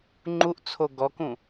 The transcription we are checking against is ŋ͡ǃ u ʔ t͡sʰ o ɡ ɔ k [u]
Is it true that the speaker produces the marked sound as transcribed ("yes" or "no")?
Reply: no